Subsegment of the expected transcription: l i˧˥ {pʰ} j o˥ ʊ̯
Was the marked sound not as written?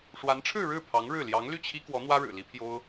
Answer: no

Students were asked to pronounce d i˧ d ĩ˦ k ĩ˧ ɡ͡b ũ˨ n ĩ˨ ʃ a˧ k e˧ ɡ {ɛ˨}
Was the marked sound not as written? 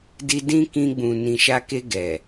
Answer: no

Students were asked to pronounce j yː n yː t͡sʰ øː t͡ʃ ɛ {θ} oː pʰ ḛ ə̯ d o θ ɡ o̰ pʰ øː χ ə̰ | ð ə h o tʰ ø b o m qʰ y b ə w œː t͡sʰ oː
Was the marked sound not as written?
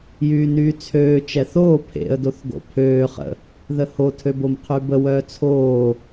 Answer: no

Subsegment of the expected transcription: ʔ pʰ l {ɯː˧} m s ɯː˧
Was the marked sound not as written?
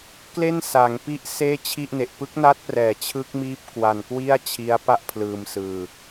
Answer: no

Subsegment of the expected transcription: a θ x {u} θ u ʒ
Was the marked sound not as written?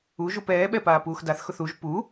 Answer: yes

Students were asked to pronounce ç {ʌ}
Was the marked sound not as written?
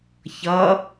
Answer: no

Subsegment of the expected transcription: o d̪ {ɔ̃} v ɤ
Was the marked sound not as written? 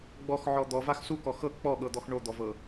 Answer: yes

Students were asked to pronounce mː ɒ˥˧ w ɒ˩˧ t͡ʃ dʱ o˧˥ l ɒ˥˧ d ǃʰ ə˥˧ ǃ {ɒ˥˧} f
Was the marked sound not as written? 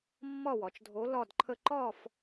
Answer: no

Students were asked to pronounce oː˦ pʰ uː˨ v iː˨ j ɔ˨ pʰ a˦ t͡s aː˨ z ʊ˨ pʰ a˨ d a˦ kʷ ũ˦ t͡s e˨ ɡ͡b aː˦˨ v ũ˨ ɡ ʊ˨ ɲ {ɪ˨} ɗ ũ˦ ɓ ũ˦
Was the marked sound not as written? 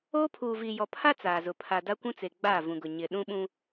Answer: no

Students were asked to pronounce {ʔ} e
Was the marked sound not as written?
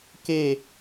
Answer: yes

